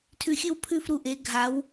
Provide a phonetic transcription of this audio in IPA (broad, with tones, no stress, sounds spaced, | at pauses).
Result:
tʰ ʉ˧ xʲ ɨ˥˧ w pʰ ʉ˥˧ f ɾ u˧ ʔ e˩˧ ɡʱ a˩˧ w